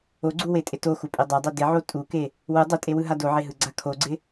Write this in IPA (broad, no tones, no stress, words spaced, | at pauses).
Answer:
oɡ͡ǀuwetʼɪ toxupʼe dˤadˤø dɪʕo tʼuke | wɯ dˤɪtʼewɯɦa doʕeɦɯɡ͡ǀa kʰoɡ͡ǀɪ